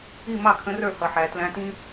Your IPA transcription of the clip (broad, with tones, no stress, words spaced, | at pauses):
i˥˩mɑ˥˩kʰə̃˨˥rə˞˥˩ hʌ˩ħæ˩ tlæ̃˨˥tĩ˥